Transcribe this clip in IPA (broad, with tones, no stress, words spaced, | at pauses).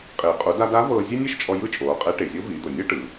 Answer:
qʼiː˩qʼu˩˧da˧da˧˥ vɤː˧ zʲe˥nʲe˥ʃt͡ʃʼɔ˧ jɯ˥t͡ʃʼoː˩˧qʼe˧˥ ʈe˩zʲo˧˥viː˩˧d̪o˩ nʲɤ˥ ʈɯ˩˧